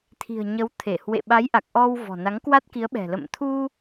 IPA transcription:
t̪ʰ i̤˨˩ ə̯ ɲ ə˨˦ w t̪ʰ e˧˩ h w ḛ˧˨ ɓ a˨˦ j ʔ a˨˩ k̚ ʔ ɔ˧ w v ɔ̤˨˩ n a˨˦ ŋ k w a˦˥ t̚ k i˨˦ ə̯ ɓ ɛ̤˨˩ l ə̰˧˨ m t̪ʰ u˧

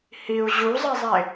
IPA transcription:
h i u̯ ʑ u zˤ i zˤ e

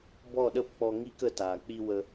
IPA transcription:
b ɔ˦˨ ɗ ə˦˨ p k͡p ɔ˧ ŋ i˦ k ə˧ t aː˨ k͡p i˧ w ə˧

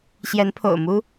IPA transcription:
ɕ j ɛ˧˥ n pʰ o̰˨˩ ʊ̯ m u˥

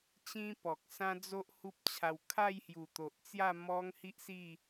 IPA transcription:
t͡ɕ ĩ˦ p ɔ˨ k̚ s ã˦ d͡z o˦ ʔ h u˦ p̚ t͡ɕʰ a˧ w kʰ a˥˧ j h j u˨˩ t̪ o˨ ʔ t͡s j a˥˧ m ɔ˦ ŋ h i˦ ʔ s i˥˧

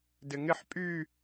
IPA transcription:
d ɪ ŋ ɪ ħ pʼ y

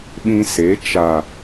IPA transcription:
ɓ ĩ˧ s e˨˦ t͡ʃ a˨

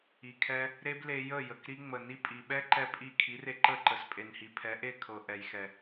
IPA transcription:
i˨ kʰ ɛ˧ | ɾ e˦ b l e˧ j ə˦˨ j ə˨ k ɾ i˧ ŋ͡m ə˨ n i˦ pʼ i˨ ɓ ɛ˦ ǃ ɛ˧ pʼ i˦˨ kʰ i˨˦ r e˧ ǃ ə˦˨ ǃ ə˨ s pʼ e˨ n h i˨ pʰ ɛ˨˦ ʔ e˦˨ kʰ ɤ˨ ʔ ɛ˨ j x ɛ˨

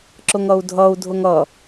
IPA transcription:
ǁ ʊ ŋ ʌ u̯ dʱ ʌ u̯ dʱ ʊ ŋ ʌ

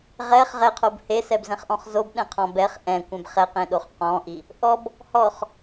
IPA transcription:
ʁ ɛ χ ʁ ɛ qʰ o b h e s ɛ b z ɛ̃ χ ʔ ɔ̃ χ z o b ɗ ɛ̃ qʰ ɔ̃ b ɛ χ ʔ ɛ̃ kʷ ɛ̃ b χ ɛ q ẽ ɗ o χ q ɔ̃ ʔ i | ʔ ɔ b | h ɔ χ

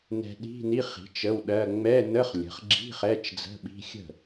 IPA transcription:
n ɛ̤˧ ɗ i̤˧˥˧ n i˧˥˧ χ i̤˩˥ t͡ʃ ə˧˥˧ w ɗ ɜ˧˥˧ ŋ͡m ɛ˧˥˧ n ə˧˥˧ χ lʲ ə̤˩˥ χ ɡ͡ǁ i̤˧˥˧ χ ɛ˧˥˧ t͡ʃ d͡z ə̤˧˥˧ ɓ i̤˧˥˧ xʲ ə̤˥˩

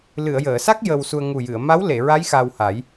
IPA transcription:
l ɨ˨˩˨ ə̯ j əː˨˩˨ s a˦˥ k̚ j ə˧ w s u˧ ə̯ ŋ u˨˩ j ɨ˨˩˨ ə̯ m a˧˥ w l e˨˩˨ ɹ a˧˥ j x a˧ w h a˨˩˦ j

